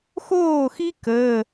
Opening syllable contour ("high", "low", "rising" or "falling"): falling